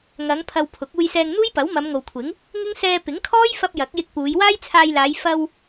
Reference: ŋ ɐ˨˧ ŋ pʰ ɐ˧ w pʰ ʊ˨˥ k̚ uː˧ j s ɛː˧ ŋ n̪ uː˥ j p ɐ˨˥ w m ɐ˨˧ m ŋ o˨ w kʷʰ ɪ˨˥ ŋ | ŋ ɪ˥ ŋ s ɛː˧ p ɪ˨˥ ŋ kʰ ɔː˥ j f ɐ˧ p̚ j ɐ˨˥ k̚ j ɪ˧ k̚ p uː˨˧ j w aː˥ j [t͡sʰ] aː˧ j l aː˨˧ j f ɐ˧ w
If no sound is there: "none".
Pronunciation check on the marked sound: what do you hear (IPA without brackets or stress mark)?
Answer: t͡sʰ